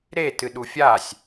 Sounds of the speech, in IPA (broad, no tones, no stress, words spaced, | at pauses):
ɾe tɨɗufʲasʲ